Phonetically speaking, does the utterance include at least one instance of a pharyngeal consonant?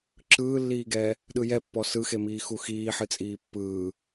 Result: yes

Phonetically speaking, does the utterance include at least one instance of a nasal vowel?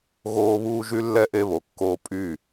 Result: no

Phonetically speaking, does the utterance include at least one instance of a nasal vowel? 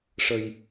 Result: no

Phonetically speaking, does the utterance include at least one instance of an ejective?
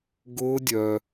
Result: no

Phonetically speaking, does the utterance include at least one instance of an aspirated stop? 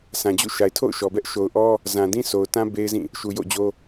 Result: yes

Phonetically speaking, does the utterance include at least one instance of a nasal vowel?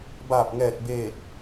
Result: no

